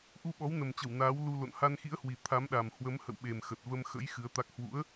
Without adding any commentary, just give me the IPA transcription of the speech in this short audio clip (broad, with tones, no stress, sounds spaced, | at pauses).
ʔ u˧ ɓ ɔ˨˦ w n ə˨˩ m t͡ɕ ə˧˩ w n aː˨˦ w l u˧ l o̰˧˨ n h a˧ n x ḭ˧˥ ə̯ h w i˨˩ t̪ʰ a˨˦ m ɗ a˨˩ m h w ə˨˦ m h ə̰˧˨ w ɓ e˨˩ m x ə˨˩ t̚ v ə˧ m x ə̰˧˥ j x ɨ˨˦ ə̯ t̪ a˦˥ k̚ h w ṵ˧˥ ə̯